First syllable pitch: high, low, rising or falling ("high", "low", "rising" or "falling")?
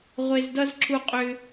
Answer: high